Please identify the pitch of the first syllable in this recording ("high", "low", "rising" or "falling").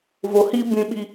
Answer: low